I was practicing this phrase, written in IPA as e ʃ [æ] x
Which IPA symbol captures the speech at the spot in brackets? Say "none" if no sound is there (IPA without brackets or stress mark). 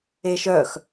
œ